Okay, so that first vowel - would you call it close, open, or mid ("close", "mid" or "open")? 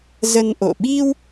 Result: mid